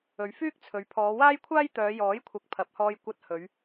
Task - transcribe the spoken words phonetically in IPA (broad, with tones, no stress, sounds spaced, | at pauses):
ɵ˨˧ ɥ f yː˥ k̚ t͡sʰ ɵ˨ ɥ pʰ ɔː˨˧ w aː˥ j kʷʰ aː˥ j t̪ œː˨˧ j ɔː˨˥ j kʷʰ ɐ˨ k̚ pʰ ɐ˨˥ p̚ h ɔː˧ j kʷ ɐ˧ t̚ h ɵ˨˧ ɥ